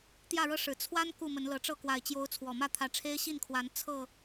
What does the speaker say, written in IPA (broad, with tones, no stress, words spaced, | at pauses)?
t̪jä˥˨ɻɤ˦ʂɻ̩˨˩ t͡sʰwa˦n ku˥˨mə˨˦nlɤ˨˦ʈ͡ʂɤ˥˨ kwa˨˩ɪ̯t͡ɕjo˨˦ʊ̯ t͡sʰwɔ˨˩mä˥˨ t̪ʰä˨˦ʈ͡ʂʰe˦ɪ̯ɕi˥˨nkʰwa˨˦n t͡sʰɤ˥˨